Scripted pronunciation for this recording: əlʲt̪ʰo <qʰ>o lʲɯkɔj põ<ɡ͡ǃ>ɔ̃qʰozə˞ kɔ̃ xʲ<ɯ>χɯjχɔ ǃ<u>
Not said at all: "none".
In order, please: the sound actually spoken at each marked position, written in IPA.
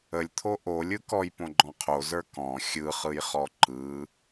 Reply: ʔ, ɡ͡ǃ, ɯ, ɯ

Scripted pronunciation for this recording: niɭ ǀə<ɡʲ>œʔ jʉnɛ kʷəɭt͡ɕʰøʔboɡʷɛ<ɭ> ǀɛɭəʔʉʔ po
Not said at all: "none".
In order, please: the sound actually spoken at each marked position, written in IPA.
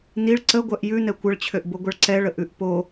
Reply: ɡʷ, ɭ

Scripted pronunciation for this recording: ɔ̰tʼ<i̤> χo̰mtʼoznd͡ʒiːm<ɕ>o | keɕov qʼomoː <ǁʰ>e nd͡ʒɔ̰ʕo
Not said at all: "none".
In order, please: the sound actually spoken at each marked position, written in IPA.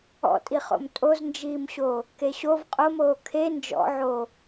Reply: i, ɕ, kʰ

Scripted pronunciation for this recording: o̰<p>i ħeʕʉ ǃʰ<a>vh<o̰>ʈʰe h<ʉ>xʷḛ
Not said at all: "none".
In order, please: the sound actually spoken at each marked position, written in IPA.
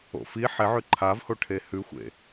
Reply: f, a, o, ʉ

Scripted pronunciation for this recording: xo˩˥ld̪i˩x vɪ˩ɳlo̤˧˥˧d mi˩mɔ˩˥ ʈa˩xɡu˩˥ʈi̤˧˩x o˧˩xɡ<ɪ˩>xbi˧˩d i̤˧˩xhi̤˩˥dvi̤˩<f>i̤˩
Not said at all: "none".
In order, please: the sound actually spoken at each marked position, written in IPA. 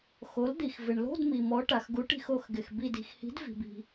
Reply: ɪ˩, b

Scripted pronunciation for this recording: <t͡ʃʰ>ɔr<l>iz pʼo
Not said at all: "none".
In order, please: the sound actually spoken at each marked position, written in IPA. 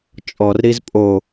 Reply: t͡ʃʼ, ɾ

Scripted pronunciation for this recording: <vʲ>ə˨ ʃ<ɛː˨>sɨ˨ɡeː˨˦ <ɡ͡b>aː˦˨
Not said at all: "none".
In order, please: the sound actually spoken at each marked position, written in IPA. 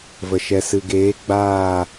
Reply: v, ɛ˨, ɡ͡b

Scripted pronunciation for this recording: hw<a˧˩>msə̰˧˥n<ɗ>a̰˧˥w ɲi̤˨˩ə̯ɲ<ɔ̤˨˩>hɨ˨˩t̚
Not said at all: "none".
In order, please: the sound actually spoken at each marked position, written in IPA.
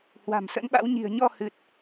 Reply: a̤˨˩, ɓ, ɔ˧

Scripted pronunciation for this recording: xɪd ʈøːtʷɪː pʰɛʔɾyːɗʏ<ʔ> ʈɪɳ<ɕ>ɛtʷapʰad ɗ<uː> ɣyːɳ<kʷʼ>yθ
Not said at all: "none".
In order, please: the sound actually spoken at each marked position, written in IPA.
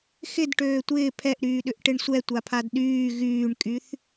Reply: ʔ, sʷ, yː, kʼ

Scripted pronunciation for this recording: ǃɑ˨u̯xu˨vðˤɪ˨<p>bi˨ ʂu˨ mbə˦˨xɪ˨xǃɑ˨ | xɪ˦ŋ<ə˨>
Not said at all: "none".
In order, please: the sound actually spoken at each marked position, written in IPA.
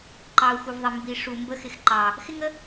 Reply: m, ə˦

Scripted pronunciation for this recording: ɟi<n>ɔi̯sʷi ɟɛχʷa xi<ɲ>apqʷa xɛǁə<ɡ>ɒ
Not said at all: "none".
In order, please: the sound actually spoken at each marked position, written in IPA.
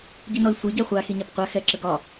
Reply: n, ɲ, ɡ

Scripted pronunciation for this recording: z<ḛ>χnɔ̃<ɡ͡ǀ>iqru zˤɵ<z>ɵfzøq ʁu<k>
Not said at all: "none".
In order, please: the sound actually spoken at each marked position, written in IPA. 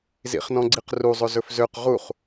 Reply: ḭ, ɡ͡ǀ, z, χ

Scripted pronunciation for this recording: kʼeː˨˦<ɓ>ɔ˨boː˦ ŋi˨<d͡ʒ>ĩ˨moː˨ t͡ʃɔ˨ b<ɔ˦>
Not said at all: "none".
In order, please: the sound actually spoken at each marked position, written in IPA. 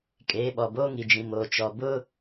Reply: ɓ, d͡ʒ, ʊ˦

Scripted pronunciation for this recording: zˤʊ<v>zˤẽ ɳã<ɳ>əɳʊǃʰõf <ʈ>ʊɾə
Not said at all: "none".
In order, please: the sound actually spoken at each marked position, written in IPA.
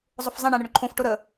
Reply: f, ɳ, ʈ

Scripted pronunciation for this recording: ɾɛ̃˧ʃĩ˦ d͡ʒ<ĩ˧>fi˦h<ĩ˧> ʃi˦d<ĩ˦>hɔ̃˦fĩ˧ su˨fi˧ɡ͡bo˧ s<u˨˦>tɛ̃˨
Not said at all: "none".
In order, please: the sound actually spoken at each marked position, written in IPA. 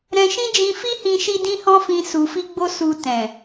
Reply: ĩ˧, ĩ˧, ĩ˦, u˧

